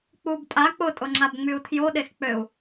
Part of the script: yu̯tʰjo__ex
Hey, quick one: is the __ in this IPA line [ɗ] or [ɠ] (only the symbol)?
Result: ɗ